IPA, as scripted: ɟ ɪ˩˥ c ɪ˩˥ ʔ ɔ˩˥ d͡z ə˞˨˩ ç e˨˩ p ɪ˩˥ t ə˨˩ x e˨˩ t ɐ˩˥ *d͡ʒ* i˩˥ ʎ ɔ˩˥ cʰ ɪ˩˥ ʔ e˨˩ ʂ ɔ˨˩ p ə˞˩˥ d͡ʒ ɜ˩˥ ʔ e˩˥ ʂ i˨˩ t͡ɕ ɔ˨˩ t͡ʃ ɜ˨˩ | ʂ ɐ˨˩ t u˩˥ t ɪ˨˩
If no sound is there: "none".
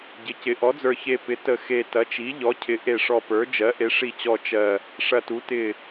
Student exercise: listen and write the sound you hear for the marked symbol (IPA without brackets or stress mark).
t͡ʃ